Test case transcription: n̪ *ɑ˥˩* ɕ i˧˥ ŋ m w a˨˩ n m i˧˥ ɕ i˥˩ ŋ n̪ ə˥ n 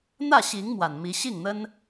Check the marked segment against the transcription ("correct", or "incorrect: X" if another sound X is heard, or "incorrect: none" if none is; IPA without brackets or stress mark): incorrect: ä˥˩